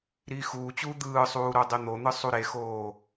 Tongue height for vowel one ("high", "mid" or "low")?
high